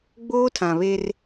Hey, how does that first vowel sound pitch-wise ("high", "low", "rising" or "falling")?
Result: high